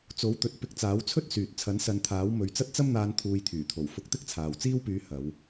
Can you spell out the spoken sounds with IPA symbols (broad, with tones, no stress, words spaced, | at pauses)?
t͡so˨˥wt̪ɵ˨t̚ pɪ˧k̚t͡saː˨˥wt͡sʰɵ˥t̚ syː˨t̚ t͡sʰɐ˨˥nsɐ˨˧nt̪ʰaː˨˥w mɵ˨ɥt͡sɐ˥t̚t͡sɐ˥m n̪aː˧nt̪ʰuː˨˧jt̪ʰyː˨˩t̪ʰo˨˩w fʊ˧k̚ t̪ɪ˥k̚t͡sʰaː˨wt͡siː˥wpyː˧ hɐ˨˧w